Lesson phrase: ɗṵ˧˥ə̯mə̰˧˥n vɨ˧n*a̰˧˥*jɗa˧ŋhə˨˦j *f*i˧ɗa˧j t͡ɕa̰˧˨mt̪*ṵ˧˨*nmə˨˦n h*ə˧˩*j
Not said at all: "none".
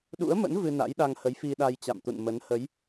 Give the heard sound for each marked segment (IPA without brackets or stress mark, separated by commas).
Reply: a̰˧˥, f, ṵ˧˨, ə˨˦